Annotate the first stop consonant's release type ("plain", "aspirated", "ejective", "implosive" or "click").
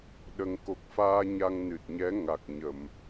implosive